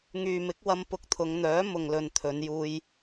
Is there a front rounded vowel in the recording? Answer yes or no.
yes